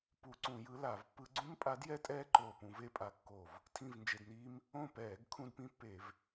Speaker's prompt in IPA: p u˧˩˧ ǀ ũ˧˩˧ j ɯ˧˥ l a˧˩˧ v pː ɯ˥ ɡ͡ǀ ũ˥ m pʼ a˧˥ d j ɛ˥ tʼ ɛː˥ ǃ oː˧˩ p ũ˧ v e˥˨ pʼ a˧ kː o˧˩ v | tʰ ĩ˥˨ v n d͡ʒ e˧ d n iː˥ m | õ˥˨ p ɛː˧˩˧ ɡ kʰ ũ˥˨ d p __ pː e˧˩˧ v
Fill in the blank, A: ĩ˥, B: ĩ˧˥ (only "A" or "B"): A